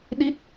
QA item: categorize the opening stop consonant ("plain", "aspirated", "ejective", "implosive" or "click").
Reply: implosive